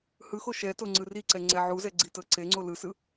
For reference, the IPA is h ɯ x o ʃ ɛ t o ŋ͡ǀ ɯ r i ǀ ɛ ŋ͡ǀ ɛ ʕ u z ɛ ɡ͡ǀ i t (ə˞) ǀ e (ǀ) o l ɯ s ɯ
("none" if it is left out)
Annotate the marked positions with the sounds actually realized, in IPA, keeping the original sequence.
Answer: ɤ, ŋ͡ǀ

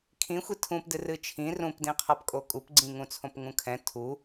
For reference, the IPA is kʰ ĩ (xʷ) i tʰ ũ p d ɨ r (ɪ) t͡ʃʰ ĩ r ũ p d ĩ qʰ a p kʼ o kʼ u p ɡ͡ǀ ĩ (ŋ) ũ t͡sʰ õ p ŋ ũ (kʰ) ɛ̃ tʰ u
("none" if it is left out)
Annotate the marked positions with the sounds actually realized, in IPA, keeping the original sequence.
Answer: xʷ, ɨ, ŋ, kʰ

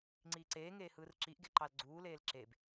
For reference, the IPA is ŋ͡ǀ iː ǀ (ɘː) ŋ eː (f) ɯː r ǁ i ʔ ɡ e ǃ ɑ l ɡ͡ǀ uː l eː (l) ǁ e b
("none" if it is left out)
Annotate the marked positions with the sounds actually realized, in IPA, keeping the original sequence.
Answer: eː, h, l

